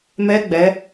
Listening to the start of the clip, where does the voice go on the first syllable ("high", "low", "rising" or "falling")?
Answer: rising